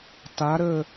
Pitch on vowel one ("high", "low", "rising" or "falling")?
rising